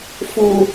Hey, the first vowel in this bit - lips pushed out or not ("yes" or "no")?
yes